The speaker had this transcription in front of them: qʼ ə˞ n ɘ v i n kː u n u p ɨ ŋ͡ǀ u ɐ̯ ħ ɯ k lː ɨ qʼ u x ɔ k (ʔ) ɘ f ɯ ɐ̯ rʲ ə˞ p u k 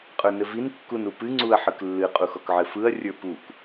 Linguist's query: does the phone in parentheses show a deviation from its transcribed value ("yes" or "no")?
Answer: yes